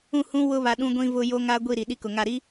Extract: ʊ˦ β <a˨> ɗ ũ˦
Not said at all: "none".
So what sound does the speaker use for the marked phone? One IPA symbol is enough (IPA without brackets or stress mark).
a˨